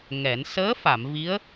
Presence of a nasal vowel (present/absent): absent